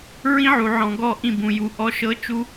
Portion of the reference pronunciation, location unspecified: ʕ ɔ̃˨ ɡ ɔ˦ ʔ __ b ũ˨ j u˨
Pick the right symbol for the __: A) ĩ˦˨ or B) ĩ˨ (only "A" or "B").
A